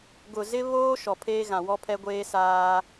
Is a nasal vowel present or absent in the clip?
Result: present